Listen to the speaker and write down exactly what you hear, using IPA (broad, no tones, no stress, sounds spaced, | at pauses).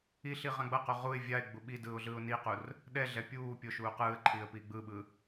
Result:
i ɬ i ʁ ã ɡ͡b ʌ q o ʁ u ɪ̯ vʲ a ɪ̯ ɡ͡b u ɓ i d ɯː ʊ̯ ɮ ɯː ʊ̯ n i q u r | ɗ ɛ ɮ ɛ pʲ uː pʲ o ʃ uː q ɯː ə̯ ǃʰ iː ə̯ p iː ɡ͡b ɯ ɓ ɯ